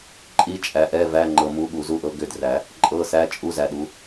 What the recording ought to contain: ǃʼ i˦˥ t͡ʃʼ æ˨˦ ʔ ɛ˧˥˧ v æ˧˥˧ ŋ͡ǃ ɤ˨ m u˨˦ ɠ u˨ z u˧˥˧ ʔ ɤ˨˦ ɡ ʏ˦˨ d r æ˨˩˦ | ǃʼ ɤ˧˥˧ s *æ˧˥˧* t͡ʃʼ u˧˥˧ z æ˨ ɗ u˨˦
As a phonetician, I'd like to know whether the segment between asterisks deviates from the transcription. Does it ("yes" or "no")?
no